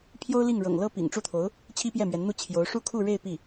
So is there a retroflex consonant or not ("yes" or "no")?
yes